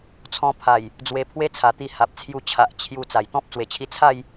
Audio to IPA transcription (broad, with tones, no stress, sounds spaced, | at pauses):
t͡sʰ ɔ̃˧ pʰ a˨˩ j | d͡z w e˧ pʰ w e˦ t͡sʰ a˨˩ t̪ i˧ h a˨ p̚ t͡sʰ j u˧ t͡ɕʰ a˨ ʔ t͡ɕʰ j u˧ t͡s a˨˩ j t̪ ɔ̃˦ p̚ t͡s w e˨˩ t͡ɕʰ i˧ t͡sʰ a˥˧ j